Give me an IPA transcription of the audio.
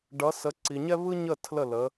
ɖ ʌ˨˦ s ə˨˦ ǀ i˨ ɲ ɛ˥ β ɯ˥ ɲ ə˥˨ tʰ l ə˥˨ l ə˨˦

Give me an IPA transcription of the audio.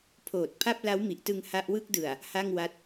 pʰ oː˨˩ t̚ pʰ a˥˩ p̚ l a˦˥ w m i˨˩ ʔ t ɯ˧ ŋ h a˦˥ ʔ w ɯ˥˩ k̚ d ɯ˨˩ a̯ | h a˥˩ ŋ w a˦˥ t̚

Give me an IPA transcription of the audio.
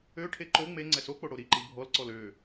ø ʈʰ e ǃ o ŋ͡m e ŋ͡ǀ ɛ s o k͡p o ɽ o ɾ i ǃ i bʱ ɔ l ǀ ɔ l ø

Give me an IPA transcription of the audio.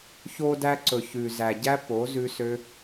ç o˧ d æ˧ ǀ ɵ˨ ç ʉ˨ z æ˨ ɟ æ˦ p o˨˦ z ʉ˦ s ø˦

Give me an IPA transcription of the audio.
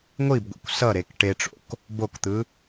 ŋʷ i b ɡʷ ḭ kʷ s ʌ ɾ e k ʈ e ʈ͡ʂ o̰ k | b o k t̪ ɯ

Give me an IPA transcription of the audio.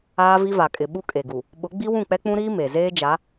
aː˦ v i˦ v a˨ kʼ ɪ˨ ɓ u˦ kʼ e˨ ɡ u˨ | ɓ ʊ˨˦ ɡ͡b i˦ w ũ˦˨ k͡p ɛ˦ k͡p ũ˦ ɾ iː˦ m e˨ z eː˦ d͡ʒ a˨˦

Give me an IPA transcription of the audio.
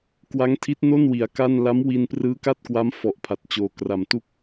k w a˦˥ ŋ tʰ i˦˥ t̚ n o˥˩ n w i˩˦ a̯ k a˥˩ n l a˦˥ m w i˧ n p r ɯː˦˥ k a˥˩ t̚ k w a˦˥ m f ɔ˨˩ ʔ pʰ a˨˩ t̚ t͡ɕ oː˨˩ k r a˨˩ m t u˥˩ k̚

